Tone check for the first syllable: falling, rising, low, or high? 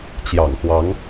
low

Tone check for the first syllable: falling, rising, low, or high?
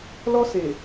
high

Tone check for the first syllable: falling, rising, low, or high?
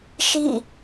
falling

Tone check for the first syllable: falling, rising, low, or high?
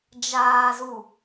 low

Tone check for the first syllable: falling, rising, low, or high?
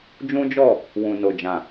high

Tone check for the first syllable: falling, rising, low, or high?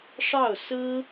falling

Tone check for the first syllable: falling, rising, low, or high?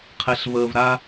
low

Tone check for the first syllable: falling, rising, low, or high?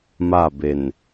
falling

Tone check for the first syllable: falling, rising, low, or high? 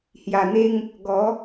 low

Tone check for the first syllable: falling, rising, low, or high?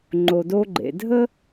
low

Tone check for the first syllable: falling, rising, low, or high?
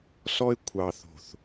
high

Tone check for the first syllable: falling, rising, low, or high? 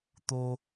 high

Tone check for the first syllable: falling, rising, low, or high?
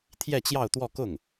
falling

